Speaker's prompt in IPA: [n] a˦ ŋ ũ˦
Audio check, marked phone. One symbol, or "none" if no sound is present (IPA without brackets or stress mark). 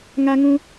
ŋ